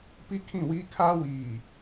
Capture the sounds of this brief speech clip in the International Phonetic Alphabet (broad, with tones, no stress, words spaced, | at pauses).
pi˦kʰĩ˦˨wiː˦ kʰaː˦ wiː˨